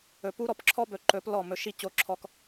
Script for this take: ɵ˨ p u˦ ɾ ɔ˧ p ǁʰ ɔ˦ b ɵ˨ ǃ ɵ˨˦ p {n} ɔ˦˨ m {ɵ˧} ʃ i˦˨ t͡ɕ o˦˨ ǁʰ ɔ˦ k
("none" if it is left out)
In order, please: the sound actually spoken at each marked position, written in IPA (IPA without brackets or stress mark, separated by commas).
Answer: l, ɵ˧